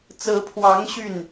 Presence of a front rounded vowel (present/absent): present